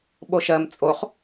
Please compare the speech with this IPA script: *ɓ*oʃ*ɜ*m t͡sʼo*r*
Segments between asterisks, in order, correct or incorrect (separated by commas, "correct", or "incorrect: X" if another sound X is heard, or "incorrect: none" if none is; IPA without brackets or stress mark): correct, correct, incorrect: χ